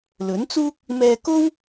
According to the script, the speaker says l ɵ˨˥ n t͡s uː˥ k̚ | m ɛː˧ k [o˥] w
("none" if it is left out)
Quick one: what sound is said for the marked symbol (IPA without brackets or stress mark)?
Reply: o˥